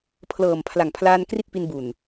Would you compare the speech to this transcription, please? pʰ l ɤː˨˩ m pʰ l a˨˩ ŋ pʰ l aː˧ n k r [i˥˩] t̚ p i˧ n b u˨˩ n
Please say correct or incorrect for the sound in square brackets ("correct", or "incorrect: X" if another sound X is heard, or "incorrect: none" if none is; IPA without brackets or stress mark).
correct